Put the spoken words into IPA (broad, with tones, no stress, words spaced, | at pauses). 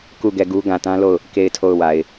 ku˦˨ ɡɛ˦˨ɡu˦ ɡã˨tã˦lo˦˨ʊ̯ | ke˦˨ɪ̯tʰo˦˨ʊ̯wa˨ɪ̯